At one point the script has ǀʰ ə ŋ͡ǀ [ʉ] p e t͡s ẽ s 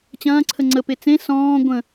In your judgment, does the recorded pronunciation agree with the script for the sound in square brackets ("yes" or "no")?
no